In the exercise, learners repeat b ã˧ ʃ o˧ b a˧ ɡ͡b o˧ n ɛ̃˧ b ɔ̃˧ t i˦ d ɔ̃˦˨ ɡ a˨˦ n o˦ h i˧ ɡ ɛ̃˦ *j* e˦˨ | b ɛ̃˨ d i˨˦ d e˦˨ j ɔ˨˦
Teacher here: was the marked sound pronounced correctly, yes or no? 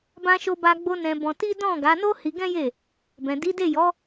yes